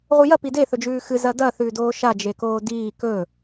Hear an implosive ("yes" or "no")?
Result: no